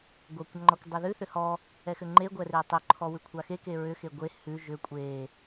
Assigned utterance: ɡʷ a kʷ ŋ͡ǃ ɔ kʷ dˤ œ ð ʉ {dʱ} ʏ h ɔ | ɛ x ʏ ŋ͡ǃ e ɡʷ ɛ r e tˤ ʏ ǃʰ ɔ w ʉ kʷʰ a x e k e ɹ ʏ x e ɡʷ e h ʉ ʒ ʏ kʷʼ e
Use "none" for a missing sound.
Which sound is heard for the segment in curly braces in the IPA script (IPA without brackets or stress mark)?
θ